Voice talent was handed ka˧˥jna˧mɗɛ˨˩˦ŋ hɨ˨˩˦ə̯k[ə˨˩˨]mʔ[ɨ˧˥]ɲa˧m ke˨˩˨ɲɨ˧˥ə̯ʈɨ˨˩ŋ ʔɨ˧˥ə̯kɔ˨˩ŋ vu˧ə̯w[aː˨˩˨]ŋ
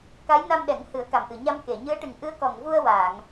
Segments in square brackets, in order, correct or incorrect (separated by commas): incorrect, incorrect, correct